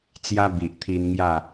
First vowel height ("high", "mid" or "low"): low